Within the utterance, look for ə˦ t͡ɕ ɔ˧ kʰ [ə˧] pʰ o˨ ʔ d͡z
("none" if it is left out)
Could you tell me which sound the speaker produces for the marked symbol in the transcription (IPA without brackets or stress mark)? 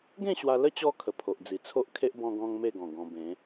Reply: ə˨˩